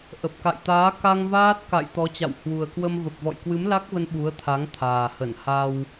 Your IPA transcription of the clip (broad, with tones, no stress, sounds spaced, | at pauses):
ʔ ə˨˩ p̚ k a̰˧˨ j t̪ aː˨˦ k a˧ ŋ v aː˦˥ t̚ k a̰˧˨ j t̪ ɔ˨˦ t͡ɕ a̰˧˨ w h w u˨˩ ə̯ k w ə˧ m v ə˨˩ p̚ v ɔ̰˧˨ j k w ɨ˨˦ m l a˦˥ k̚ v ə˧ n ɓ u˨˦ ə̯ t̪ʰ a˨˦ ŋ t̪ʰ aː˨˩ h ə˧˩ n h a˧ w